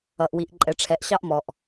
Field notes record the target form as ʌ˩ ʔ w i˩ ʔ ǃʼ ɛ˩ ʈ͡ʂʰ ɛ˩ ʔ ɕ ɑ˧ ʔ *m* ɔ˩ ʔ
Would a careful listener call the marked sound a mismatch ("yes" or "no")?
no